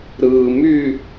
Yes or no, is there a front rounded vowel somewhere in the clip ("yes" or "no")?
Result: yes